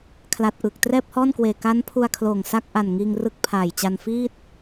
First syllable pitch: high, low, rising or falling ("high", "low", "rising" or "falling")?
low